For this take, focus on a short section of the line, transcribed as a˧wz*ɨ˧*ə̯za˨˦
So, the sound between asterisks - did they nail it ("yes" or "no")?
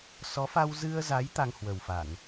yes